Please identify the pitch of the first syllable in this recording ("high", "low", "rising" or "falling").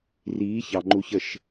rising